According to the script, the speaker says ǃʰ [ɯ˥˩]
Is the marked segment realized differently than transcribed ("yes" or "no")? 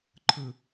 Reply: no